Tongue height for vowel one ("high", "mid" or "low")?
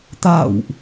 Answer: low